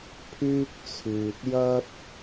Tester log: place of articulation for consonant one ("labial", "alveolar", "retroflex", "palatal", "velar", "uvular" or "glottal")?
labial